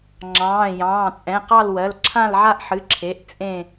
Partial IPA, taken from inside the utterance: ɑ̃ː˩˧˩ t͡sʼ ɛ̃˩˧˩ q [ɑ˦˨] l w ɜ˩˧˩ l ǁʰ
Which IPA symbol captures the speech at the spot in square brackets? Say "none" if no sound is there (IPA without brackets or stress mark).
ɑ˦˨